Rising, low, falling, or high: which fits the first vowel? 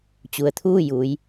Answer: low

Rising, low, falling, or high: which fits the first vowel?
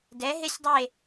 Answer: rising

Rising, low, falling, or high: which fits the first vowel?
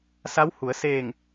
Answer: rising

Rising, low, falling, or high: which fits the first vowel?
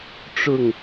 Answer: falling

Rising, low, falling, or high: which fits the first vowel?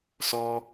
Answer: high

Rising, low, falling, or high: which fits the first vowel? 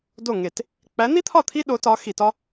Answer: falling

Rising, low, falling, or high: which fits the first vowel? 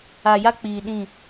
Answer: low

